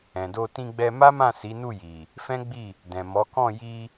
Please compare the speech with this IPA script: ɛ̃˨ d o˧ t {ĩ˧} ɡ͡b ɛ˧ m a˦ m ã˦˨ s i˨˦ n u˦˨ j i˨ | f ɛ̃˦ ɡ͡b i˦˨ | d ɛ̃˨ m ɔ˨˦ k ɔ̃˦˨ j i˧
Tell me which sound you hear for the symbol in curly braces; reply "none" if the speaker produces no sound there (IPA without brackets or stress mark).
ĩ˧